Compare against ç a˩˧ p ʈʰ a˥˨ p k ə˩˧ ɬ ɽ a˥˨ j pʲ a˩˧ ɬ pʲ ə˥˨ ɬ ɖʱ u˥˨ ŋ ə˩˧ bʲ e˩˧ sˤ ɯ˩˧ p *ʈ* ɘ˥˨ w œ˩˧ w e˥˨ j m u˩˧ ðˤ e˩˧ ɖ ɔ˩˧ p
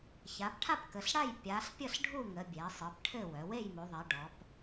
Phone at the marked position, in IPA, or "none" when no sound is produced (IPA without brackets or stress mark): ʈʰ